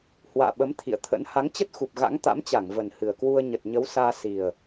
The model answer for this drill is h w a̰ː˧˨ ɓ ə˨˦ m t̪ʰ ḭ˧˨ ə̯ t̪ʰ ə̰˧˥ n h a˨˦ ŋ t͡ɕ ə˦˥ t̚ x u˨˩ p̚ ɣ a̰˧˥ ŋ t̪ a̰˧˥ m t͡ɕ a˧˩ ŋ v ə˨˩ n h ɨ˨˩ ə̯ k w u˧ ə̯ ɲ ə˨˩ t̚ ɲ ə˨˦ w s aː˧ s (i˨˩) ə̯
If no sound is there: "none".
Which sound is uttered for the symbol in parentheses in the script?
i˨˩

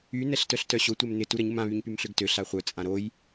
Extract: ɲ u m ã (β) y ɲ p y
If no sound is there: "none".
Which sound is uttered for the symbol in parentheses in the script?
β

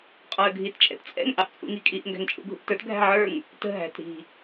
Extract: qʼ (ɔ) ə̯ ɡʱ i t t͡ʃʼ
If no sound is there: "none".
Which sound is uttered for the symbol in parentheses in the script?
ɔ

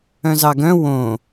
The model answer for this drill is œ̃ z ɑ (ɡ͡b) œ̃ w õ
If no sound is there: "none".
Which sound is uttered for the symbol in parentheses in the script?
ɡ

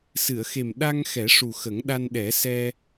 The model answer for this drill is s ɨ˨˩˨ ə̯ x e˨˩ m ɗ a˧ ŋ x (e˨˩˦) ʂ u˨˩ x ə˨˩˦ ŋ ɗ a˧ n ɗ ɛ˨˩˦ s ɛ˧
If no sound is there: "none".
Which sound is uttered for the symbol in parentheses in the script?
ɛ˨˩˦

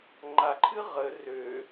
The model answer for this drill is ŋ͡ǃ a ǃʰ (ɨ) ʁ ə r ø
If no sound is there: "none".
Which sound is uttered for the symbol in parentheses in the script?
ɨ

